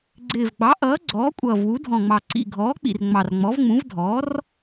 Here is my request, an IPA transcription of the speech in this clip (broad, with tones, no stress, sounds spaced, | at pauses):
ɡ͡ǀ ɪː˨˩ v ɡ͡b ɑ˩˥ ʔ ʌː˩˥ ɡ͡ǀ ɔː˩˥ kʷʼ ʌː˨˩ v w u˩˥ dʱ ɔ̃˨˩ ŋ͡m ɑ˨˩ ǀ ḭ˨˩ ɡʱ ɔː˩˥ k͡p ḭ˨˩ r ŋ͡m ɑ˨˩ r ŋ͡m ɔ˩˥ v ŋ͡m ũ˩˥ v dʱ ɔː˩˥ r